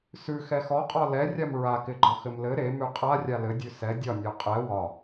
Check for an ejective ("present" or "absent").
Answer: present